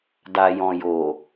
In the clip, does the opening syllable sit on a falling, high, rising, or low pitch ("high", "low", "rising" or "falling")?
low